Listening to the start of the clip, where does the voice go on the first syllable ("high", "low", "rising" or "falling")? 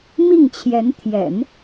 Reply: falling